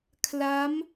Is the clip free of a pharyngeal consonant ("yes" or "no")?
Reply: yes